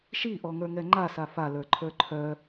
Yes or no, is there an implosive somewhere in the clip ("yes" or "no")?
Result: no